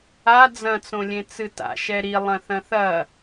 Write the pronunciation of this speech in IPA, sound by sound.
a d͡z ɐ̃ t͡s õ lʲ ẽ t͡s ɨ t a̰ ʃ ɛ ɾ i lˠ ɐ̃ θ ɐ̃ θ ɐ

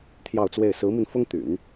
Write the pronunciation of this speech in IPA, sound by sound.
t̪ʰ j ɑ˥˧ ʊ̯ t͡s w e˥˩ ɪ̯ s ɹ̩˧˥ m i˧ n f ʊ˥ ŋ t̪ y̰˨˩˦ n

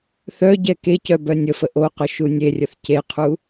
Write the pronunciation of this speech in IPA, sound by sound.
θ œ ɟ ɛ k e c œ b œ nʲ ə f ə ʔ o q ʊ ʃ u nʲ e rʲ ə θ c e qʰ u

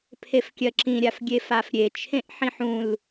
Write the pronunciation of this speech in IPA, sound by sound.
pʰ e f kʲ ɜ ǁ ĩ ɾʲ a f ɡʲ e f a f ɾʲ e t͡ʃʰ ẽ ʔ ħ ĩ ħ ũ l

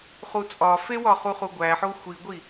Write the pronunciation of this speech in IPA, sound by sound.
χ u t͡sʼ ɒ f e w ɒ χ u χ u ɡʷ æ ħ o xʷ i ɡʷ i

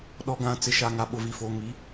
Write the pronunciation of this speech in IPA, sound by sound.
ɗ ɔ˨ ɡ ã˨ t͡s ɪ˨ ʃ a˨ ŋ a˨ ɓ ʊ˨ v i˨ f o˨ ŋ i˨˦

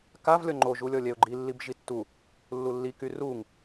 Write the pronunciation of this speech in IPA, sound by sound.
k a v lʲ ɔ ŋ͡ǃ o ʒ u lʲ ɔ lʲ ɛ ʊ̯ ɡ͡ǃ i lː i b ʒ i tː u | lː u lː i k y r u ŋ

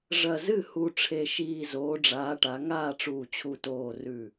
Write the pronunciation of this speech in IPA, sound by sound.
ʐ ɐ˧˩ z ɨ˥˩ h u˧˩ ʈ͡ʂʰ e˧˩ ʃ iː˧˩ z oː˨˦ ɖ͡ʐ aː˨˦ ʈ a˨˦ ŋ aː˥˩ ʈ͡ʂ uː˧˩ t͡ɕʰ u˧˩ t oː˧˩ r ʉ˧˩

